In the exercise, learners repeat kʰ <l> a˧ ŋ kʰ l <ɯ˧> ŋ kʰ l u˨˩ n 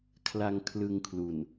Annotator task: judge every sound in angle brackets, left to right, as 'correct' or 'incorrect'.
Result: correct, correct

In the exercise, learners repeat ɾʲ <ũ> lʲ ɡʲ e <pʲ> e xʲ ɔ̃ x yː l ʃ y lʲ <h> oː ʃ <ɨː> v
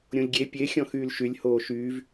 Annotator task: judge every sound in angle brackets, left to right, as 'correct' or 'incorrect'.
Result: incorrect, correct, correct, incorrect

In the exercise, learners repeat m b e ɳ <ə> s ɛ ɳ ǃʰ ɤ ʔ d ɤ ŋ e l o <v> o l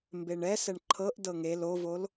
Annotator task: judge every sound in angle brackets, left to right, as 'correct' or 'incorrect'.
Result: incorrect, correct

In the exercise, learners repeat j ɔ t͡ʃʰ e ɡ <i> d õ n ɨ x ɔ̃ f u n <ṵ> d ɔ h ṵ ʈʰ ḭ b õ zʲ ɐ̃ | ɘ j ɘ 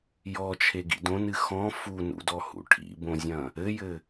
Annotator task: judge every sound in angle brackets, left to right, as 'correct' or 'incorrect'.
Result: incorrect, correct

